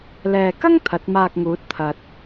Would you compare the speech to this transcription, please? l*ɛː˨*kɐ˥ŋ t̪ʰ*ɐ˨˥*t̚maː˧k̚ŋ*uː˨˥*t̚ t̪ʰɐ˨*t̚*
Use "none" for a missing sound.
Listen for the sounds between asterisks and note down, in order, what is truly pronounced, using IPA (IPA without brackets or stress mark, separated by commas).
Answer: ɛː˨, ɐ˨˥, uː˨˥, t̚